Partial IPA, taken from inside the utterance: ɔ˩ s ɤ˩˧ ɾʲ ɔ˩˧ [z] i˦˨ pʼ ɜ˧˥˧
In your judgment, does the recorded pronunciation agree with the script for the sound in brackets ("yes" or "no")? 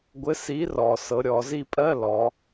yes